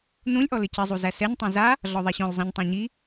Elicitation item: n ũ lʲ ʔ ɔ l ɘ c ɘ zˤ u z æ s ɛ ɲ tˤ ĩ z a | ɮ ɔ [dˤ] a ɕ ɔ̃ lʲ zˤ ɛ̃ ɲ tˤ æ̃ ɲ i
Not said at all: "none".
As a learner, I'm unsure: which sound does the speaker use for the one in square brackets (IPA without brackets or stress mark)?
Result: ðˤ